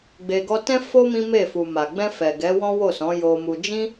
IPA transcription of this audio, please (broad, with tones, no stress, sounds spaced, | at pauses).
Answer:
ɡ͡b e˧ ɡ ɔ˦ t ɛ̃˦ f o˦ m ĩ˦ m e˦˨ f u˨ m a˨ ɡ͡b ɛ̃˧ f ɛ˨ ɡ ɛ˨˦ w ɔ̃˦ w o˦˨ s ɔ̃˨˦ j o˧ m u˧ d͡ʒ ĩ˦